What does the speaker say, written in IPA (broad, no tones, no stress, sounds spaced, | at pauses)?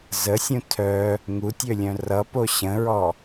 z ə sʲ ũ tʰ œ | ŋ u tʲ ø lʲ œ̃ r ʌ p o ɕ ə̃ ɹ ɔ